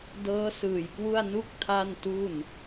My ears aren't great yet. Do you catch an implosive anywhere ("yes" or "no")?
no